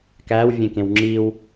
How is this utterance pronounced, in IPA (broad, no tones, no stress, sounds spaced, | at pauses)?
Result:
k æ w vʲ ẽ k ẽ w ŋ͡ǁ i w